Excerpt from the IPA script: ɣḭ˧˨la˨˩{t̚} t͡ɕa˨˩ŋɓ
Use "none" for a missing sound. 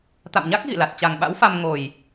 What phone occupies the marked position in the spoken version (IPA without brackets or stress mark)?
t̚